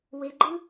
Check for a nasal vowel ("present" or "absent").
absent